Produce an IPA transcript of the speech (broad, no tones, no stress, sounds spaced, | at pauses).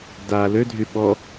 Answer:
d a l ø dʱ y ɓ ɔ